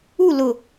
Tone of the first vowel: falling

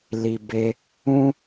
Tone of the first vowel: low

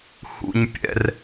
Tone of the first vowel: low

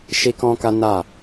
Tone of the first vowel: high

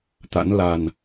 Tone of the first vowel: rising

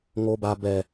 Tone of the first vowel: high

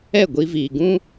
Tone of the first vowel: falling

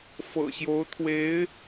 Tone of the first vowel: low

